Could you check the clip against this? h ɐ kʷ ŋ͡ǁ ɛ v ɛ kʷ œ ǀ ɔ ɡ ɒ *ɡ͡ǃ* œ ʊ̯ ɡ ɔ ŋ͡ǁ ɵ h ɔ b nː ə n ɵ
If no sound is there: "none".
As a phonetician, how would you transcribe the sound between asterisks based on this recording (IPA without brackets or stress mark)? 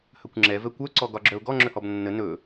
ɡ͡ǁ